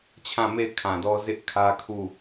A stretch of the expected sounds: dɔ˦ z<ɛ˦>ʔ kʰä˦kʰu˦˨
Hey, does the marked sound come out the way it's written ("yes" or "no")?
no